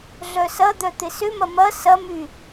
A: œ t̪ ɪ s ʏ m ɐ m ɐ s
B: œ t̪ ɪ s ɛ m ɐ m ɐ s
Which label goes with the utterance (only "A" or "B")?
A